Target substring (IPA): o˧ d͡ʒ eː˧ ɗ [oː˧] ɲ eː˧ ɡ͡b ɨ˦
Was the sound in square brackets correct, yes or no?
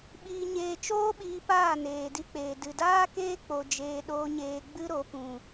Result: yes